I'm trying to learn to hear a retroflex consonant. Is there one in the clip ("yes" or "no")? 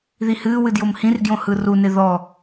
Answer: no